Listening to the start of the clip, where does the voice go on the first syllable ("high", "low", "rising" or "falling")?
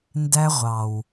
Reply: high